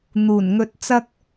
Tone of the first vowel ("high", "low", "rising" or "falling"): low